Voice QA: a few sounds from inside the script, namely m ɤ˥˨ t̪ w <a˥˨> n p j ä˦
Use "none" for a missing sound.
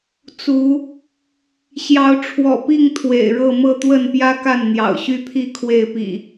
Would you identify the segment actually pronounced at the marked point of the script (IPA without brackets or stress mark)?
ə˥˨